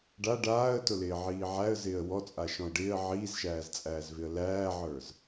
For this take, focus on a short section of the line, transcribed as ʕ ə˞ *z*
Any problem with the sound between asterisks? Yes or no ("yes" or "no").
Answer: no